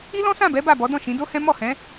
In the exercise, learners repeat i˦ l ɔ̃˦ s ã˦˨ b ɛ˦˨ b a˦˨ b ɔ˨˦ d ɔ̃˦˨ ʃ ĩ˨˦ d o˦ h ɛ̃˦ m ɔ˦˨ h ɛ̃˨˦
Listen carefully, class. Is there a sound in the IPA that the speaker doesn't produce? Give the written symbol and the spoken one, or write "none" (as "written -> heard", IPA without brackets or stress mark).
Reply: ɛ˦˨ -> ɛ˨˦